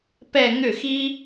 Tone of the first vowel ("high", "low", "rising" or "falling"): falling